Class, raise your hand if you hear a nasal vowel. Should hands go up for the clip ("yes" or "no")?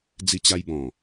yes